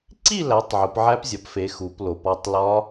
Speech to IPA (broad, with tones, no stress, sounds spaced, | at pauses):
ǀ i˥˧ l æ˨˦ tˤ ʕ u˨˦ p ʕ æ˦˥ p zʲ ɒ˨˦ p f e˨˦ x u˨˦ p l o˨˦ p ɒ˥˧ tˤ l ɒ˦˥